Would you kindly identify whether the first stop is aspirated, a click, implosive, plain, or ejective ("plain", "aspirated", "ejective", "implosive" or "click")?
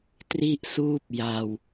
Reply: plain